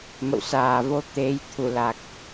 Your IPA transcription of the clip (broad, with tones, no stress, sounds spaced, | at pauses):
m ə̰˧˨ w s aː˨˩ v o˧ t̪ e˨˦ j t̪ʰ u˧˩ l a˨˩ k̚